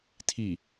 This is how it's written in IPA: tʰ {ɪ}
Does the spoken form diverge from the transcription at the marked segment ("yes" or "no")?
yes